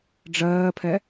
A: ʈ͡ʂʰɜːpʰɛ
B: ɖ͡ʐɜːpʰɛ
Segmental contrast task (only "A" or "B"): B